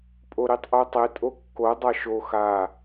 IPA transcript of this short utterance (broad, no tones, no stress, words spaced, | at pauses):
pʼoɾitˤʔotˤe tʼokːo dˤaʃo xa